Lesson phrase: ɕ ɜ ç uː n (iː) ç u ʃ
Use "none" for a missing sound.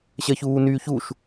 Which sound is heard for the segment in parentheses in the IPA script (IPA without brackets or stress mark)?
yː